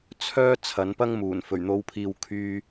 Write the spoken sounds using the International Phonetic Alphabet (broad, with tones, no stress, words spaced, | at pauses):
t͡sʰœː˥ t͡sʰɐ˨˥npɐ˥ŋmuː˨˩n fɵ˨˩ɥn̪o˨˧wpʰiː˨w kʰyː˧